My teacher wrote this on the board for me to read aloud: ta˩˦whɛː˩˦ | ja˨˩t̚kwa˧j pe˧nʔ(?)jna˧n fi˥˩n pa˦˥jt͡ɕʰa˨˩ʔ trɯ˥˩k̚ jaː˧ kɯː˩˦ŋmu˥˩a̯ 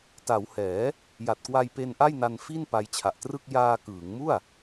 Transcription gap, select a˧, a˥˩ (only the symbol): a˥˩